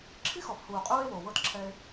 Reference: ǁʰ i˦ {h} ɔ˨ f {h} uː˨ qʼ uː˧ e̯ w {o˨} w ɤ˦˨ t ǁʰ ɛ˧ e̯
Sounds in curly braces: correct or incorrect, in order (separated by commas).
incorrect, correct, correct